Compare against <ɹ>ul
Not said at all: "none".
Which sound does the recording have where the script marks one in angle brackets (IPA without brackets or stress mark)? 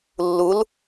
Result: lː